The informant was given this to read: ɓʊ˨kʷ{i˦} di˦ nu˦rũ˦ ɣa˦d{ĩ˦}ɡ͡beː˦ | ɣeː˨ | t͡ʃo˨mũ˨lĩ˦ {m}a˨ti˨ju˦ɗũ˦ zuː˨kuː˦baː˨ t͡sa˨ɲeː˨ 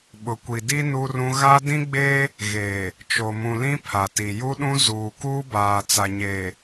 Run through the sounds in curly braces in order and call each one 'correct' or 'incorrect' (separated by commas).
incorrect, correct, incorrect